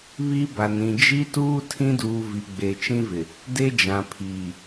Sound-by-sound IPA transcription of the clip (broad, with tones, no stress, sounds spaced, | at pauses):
β i˦ b a˨ n ĩ˨ d͡ʒ i˦ t uː˦ tʰ ĩ˦ d uː˨ v i˨ ɡ͡b e˨ t͡ʃ ĩ˦ v ɪ˨ | d e˦ d͡ʒ ã˨ pʰ iː˨